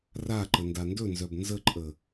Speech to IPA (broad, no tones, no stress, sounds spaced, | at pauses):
r a ǃ ə n d a n d ɵ n z œ b n z ə ǃʼ ə